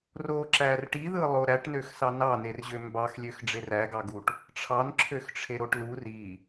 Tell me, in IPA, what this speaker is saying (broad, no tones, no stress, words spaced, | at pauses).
roǁær ʈiðɯlˠo ɾæʈnøx sɑnɑnerʑø mbɑxlʲøx ɖ͡ʐeræɡɑɡuʈ | ʈ͡ʂʰɑnǁʰøxʈ͡ʂʰe ɾoʈlu ri